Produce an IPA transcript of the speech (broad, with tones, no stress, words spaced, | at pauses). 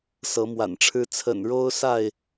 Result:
sɤ˨˦mwa̰˨˩nʈ͡ʂʰɻ̩˦ t͡sʰə̰˨˩nɻo˦ʊ̯sa˥˨ɪ̯